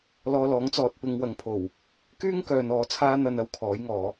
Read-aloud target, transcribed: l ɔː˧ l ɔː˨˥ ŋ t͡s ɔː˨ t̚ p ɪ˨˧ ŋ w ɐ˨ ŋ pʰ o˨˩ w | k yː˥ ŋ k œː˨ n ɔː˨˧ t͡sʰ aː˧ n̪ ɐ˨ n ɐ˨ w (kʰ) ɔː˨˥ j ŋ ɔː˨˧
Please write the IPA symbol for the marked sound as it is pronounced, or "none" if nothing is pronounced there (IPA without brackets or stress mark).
kʰ